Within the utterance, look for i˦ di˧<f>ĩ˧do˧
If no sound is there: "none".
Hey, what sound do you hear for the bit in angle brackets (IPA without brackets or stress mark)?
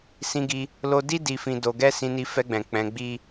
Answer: f